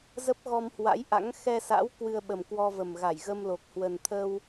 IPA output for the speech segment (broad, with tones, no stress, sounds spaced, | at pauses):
z ə˦˥ p̚ ɣ ɔ˧ m h w a̰˧˥ j ʔ a̰˧˥ ŋ x ɛ˧ s a̰˧˥ w k w ɨ˧ ə̯ ɓ ə˨˩ m k w ɔ˧ v ə˨˩ m ɣ a˧˩ j ɣ ə˧ m l o˨˩ k̚ h w ə˨˩ n t̪ʰ əː˧ w